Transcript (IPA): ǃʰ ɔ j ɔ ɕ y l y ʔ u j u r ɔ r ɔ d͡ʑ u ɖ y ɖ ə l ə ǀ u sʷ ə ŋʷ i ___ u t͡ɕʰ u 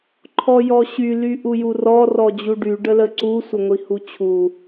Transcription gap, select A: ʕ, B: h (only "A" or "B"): B